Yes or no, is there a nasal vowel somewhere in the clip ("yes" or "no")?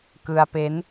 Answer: no